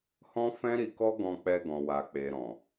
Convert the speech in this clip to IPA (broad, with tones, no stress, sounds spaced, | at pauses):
h ɔ̃˦ f ɛ̃˦ ɾ i˧ k ɔ˦ ɡ ɔ̃˧ k͡p ɛ˧ ɡ ɔ̃˨ w a˨ k͡p e˨ ɾ ɔ̃˨